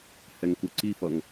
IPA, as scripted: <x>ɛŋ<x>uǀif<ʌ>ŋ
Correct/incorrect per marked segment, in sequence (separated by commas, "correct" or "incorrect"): incorrect, incorrect, correct